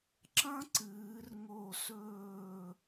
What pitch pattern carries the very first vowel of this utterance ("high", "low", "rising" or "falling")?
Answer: high